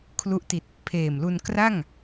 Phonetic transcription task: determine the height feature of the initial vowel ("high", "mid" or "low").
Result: high